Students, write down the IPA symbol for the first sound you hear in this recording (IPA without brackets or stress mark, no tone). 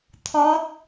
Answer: t̪ʰ